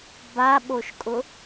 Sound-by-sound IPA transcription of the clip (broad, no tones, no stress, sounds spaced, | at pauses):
b a ɓ o ʃ kʼ ʊ